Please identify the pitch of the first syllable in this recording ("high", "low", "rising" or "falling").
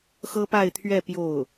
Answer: high